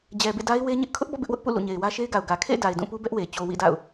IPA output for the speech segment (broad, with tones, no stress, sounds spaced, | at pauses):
d͡ʑ ɛ˨ b ḛ˦˨ d a˦ ɪ̯ w e˦ ɲ ɪ˦ ʔ kʰ ʊ˦ ʔ b ɔ̰˦˨ b ɪ˦ ʔ w ʊ˦ ʔ p ṵ˦˨ l ṵ˦˨ ɲ e˨ ɪ̯ w ä˦ ʃ e˦ ɪ̯ ɡ a˨ ʊ̯ ɡ ä˨ kʰ ḛ˦˨ ɪ̯ d a˨ ɪ̯ d ũ˦˨ p u˦ b ɛ˦ ʔ w e˨ t͡ɕ o˨ w ḭ˦˨ d a̰˦˨ ʊ̯